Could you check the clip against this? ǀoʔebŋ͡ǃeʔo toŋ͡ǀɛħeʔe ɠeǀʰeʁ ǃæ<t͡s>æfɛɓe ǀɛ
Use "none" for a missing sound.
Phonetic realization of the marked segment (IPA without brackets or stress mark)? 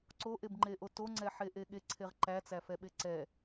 t͡s